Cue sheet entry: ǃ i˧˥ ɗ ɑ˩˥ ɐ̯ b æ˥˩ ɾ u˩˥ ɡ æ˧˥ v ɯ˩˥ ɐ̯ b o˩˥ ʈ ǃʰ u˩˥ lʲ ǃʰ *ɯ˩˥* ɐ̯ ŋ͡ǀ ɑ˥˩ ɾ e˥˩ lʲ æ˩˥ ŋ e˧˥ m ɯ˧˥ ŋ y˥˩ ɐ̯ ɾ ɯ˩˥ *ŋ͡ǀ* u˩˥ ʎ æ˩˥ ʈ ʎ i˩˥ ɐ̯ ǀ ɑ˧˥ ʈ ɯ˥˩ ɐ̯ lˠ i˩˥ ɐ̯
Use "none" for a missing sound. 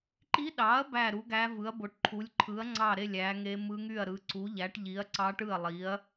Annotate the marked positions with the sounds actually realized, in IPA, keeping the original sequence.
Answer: ɯ˩˥, ǀ

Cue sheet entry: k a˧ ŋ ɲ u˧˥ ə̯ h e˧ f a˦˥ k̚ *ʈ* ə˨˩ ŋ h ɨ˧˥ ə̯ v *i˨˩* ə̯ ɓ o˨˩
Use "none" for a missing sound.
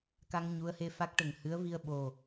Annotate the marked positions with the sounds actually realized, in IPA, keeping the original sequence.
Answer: ʈ, i˧

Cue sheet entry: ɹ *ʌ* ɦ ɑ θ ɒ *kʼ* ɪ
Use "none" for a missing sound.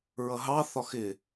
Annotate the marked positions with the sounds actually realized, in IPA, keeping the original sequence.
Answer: ʌ, x

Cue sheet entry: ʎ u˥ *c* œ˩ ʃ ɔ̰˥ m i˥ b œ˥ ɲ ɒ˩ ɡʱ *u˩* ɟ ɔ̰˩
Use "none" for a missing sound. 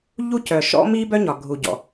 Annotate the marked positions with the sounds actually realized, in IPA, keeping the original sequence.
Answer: c, u˩

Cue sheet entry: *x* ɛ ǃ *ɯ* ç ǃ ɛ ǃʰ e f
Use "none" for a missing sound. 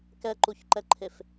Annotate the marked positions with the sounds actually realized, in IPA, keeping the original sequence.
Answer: k, u

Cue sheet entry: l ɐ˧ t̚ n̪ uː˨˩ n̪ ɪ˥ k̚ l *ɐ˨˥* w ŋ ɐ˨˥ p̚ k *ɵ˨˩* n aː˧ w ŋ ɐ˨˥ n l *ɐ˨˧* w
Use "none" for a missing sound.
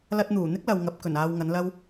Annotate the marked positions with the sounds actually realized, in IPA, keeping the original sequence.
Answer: ɐ˨, ɵ˨˩, ɐ˥

